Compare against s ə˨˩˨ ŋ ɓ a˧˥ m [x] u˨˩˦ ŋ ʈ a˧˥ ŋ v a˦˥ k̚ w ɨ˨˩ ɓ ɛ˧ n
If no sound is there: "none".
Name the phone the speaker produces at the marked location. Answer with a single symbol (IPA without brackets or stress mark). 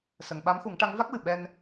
x